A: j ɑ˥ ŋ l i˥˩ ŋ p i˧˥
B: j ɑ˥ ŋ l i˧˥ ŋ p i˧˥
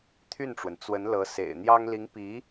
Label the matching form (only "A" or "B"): B